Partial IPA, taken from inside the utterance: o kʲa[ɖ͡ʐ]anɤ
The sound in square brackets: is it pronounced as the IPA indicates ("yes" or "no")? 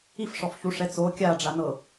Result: yes